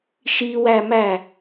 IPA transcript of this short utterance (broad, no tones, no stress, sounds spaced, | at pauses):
ʃ i w æ m æ